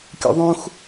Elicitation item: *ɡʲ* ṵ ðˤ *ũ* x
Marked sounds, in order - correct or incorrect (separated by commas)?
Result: incorrect, correct